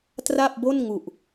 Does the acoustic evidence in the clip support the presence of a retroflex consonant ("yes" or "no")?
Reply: no